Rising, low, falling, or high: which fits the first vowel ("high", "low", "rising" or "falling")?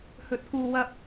low